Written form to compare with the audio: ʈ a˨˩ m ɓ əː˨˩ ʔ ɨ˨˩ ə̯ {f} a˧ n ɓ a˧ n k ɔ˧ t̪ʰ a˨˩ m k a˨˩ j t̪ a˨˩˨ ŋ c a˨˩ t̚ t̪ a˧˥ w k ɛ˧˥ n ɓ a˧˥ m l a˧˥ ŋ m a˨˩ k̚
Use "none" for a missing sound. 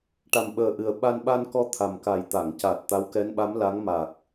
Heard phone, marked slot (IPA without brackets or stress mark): ɓ